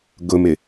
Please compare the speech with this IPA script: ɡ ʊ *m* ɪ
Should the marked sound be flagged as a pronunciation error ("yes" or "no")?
no